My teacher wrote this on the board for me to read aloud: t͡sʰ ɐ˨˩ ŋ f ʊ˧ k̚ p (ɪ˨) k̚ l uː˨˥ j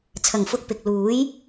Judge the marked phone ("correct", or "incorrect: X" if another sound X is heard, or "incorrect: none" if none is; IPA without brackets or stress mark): correct